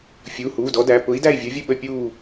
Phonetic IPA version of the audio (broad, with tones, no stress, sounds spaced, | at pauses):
fʲ uː˩˧˩ h uː˩˧˩ d ɔ˨˥ d æ˩˧˩ p ʊ˨˥ i̯ d æ˥˨ i̯ vʲ ə˞˨˥ vʲ ə˥˨ ɓ ə˥˨ pʲ uː˥˨